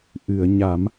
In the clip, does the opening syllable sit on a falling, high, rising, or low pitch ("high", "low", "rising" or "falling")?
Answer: low